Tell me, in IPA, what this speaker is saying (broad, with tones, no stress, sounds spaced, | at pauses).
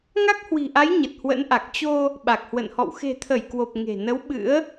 ŋ a˦˥ k̚ h w i̤˨˩ ʔ a˨˦ j ɲ ə˨˩ t̚ h w ə̰˧˥ n ʔ a˨˩ k̚ t͡ɕ o˧ | ɓ a˨˩ k̚ h w ə̰˧˨ n h ɔ̰˧˨ w x e̤˨˩ t̪ʰ ə˧˩ j k w o˨˩ p̚ ŋ e̤˨˩ n ə˨˦ w ɓ ɨ̰˧˥ ə̯